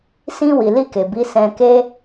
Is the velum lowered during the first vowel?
yes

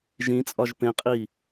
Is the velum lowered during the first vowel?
yes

